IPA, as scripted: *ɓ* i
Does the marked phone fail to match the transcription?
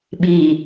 no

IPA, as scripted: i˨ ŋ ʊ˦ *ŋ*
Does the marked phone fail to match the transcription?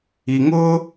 yes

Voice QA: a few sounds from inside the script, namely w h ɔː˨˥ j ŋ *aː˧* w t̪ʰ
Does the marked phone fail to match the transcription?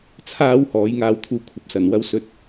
no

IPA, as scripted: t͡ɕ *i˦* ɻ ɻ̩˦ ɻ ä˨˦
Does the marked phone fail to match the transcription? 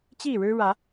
yes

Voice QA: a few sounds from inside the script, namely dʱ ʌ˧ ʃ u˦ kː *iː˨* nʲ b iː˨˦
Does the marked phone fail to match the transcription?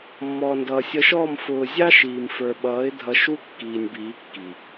no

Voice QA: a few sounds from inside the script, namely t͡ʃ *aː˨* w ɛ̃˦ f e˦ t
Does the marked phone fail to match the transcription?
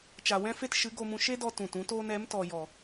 yes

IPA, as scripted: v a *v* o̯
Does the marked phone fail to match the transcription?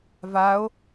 yes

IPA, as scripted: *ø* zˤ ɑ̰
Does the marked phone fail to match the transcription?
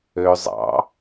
no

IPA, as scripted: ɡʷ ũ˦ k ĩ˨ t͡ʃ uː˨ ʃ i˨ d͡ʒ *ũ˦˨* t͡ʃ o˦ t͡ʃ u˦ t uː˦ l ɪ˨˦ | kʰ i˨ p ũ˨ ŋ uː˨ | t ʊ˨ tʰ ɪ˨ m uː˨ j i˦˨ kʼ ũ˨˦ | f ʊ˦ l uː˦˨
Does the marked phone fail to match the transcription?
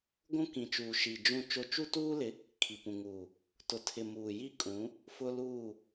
no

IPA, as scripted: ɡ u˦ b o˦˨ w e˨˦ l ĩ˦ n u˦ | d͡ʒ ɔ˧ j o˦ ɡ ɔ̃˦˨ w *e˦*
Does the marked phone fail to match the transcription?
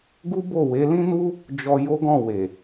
yes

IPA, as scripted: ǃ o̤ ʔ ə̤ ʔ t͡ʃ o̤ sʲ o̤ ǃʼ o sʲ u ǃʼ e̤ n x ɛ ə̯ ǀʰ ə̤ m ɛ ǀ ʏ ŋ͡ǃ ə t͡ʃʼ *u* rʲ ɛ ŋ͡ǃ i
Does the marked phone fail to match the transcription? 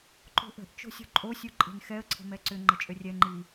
yes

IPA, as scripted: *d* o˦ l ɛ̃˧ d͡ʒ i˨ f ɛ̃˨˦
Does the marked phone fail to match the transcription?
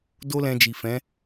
no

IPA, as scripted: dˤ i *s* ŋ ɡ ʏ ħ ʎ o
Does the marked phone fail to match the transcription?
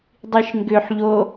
yes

